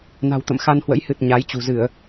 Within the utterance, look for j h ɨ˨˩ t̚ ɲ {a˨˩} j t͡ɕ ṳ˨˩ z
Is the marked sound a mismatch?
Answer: yes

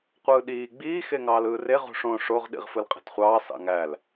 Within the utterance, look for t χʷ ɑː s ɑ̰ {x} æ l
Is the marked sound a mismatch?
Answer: yes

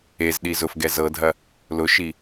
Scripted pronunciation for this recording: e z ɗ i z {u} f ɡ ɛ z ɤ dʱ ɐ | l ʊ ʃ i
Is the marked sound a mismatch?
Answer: yes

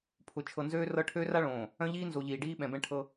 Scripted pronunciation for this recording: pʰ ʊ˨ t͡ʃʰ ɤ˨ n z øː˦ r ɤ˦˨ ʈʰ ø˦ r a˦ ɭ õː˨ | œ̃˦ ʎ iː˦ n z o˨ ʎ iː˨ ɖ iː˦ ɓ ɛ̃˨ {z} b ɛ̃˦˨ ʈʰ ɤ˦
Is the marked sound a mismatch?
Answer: yes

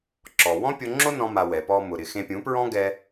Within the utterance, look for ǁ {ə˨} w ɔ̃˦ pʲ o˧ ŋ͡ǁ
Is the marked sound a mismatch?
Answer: yes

